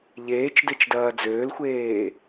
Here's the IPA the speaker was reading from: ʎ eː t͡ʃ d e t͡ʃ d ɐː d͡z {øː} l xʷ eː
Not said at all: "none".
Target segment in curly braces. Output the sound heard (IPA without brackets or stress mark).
øː